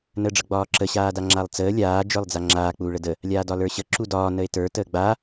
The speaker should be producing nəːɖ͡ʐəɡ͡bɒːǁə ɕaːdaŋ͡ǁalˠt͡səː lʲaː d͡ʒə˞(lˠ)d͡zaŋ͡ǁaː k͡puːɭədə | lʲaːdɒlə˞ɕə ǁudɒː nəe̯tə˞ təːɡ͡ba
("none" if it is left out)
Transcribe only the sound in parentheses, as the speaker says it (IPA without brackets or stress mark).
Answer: lˠ